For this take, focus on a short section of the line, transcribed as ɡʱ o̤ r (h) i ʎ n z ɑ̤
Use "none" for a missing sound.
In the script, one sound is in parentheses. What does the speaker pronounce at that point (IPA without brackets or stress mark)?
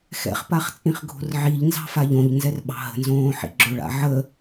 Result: ʕ